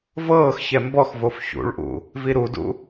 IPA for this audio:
vɤːxçɛ mbɔxvof çṵɭʔṵ | viɾudṵ

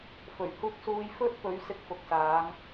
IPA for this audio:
fɵ˨˩ɥhuː˧k̚ suː˧jfɵ˥t̚ pɵ˨˥ɥsɪ˧k̚fʊ˨k̚ saː˨˧ŋ

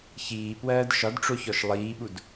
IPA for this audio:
çiːpwɜːd ʃɒdʈ͡ʂoçɔʃ lˠiːɓud

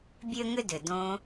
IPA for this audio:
bʲø˦ŋʏ˦dʏ˨ dõ˧

